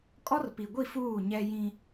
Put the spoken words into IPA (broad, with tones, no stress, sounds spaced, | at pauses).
kʼ ɔ˦ r p i˨ ɡʷ i˦˨ f uː˦˨ ɲ ɛ˦ j ĩ˦